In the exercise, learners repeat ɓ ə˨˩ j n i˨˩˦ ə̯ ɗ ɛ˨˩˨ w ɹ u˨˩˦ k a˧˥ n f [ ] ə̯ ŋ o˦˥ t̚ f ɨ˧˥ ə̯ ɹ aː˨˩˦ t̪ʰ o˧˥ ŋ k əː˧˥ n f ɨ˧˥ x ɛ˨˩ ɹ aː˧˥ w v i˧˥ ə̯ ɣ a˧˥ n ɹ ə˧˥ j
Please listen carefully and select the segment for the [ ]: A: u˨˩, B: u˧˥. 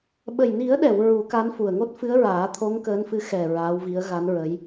A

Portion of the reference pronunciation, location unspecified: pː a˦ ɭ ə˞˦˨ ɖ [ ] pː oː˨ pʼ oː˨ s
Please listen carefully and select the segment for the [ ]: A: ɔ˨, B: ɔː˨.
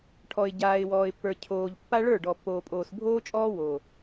A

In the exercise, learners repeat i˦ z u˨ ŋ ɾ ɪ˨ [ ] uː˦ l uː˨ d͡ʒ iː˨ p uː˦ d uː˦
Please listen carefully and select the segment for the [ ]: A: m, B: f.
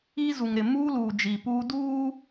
A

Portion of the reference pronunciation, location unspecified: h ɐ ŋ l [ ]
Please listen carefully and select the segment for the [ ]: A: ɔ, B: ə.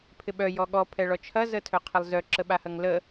B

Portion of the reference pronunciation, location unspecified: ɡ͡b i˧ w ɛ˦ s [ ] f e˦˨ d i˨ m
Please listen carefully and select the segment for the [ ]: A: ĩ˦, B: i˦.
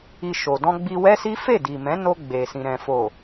B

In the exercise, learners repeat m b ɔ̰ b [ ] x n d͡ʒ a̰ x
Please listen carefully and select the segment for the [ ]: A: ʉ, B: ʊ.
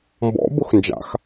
B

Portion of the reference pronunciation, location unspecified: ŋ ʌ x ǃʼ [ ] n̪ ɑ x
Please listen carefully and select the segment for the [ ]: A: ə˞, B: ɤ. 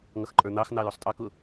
A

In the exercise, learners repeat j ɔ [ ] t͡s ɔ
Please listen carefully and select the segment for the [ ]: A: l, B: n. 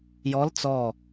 A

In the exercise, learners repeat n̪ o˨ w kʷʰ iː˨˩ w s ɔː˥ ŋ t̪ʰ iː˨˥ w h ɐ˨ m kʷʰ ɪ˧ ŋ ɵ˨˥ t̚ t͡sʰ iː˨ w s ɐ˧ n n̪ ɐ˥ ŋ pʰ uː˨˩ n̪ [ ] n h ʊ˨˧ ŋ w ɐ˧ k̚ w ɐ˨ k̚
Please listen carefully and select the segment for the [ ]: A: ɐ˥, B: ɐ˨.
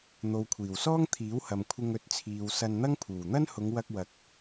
A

